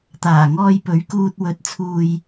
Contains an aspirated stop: yes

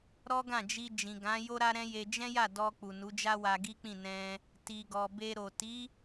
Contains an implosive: no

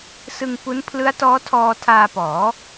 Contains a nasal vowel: no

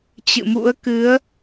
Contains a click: no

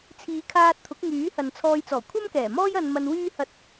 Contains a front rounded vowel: yes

